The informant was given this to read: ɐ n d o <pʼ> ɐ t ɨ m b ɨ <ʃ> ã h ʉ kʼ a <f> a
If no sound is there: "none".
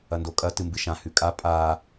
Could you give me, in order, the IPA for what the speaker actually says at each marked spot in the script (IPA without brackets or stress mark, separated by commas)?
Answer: kʼ, ʃ, pʼ